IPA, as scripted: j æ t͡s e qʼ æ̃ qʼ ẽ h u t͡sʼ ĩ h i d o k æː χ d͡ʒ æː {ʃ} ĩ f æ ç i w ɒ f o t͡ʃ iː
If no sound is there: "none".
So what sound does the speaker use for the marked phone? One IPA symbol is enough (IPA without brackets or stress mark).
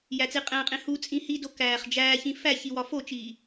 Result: ç